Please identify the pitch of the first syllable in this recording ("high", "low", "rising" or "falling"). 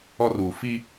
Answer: high